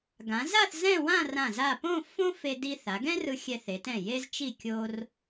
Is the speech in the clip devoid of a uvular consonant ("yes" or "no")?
yes